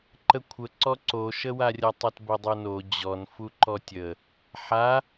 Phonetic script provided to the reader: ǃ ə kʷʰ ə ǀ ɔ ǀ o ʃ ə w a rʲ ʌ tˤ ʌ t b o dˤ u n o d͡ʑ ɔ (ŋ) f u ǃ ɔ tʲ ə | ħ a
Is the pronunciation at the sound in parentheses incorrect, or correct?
incorrect